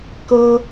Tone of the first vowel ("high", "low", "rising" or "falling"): high